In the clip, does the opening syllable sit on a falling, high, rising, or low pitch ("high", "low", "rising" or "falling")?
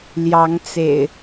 rising